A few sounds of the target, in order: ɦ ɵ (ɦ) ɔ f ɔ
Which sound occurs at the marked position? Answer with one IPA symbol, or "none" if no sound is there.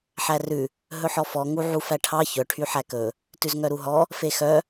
ħ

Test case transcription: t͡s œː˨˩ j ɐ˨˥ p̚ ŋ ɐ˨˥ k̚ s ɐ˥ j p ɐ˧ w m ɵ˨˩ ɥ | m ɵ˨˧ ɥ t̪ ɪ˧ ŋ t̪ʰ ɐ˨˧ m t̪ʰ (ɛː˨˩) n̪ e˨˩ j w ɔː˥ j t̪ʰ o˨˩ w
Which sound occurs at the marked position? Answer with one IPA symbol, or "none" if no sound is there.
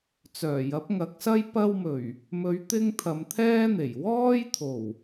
ɛː˥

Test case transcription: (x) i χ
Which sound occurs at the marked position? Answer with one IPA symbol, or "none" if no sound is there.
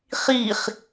χ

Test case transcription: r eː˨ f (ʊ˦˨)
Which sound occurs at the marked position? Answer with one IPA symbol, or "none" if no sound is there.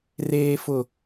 ʊ˨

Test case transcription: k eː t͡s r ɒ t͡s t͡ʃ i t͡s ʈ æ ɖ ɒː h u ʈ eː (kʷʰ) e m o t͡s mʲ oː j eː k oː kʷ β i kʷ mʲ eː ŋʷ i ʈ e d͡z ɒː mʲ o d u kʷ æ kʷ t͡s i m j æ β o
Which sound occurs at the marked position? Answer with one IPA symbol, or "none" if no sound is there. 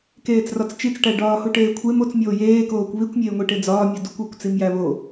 kʷʰ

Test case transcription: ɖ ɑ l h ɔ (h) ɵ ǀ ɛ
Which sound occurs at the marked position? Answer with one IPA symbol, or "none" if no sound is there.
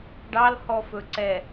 f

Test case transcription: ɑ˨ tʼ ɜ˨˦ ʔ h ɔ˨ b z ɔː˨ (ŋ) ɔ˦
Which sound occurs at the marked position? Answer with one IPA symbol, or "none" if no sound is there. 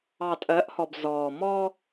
m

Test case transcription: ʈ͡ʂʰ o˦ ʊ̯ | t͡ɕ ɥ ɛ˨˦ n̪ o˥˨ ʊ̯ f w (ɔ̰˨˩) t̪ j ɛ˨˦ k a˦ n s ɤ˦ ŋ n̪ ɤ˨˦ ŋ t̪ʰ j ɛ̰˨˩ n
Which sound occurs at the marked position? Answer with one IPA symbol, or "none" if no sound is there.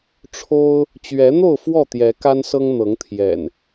ɔ˥˨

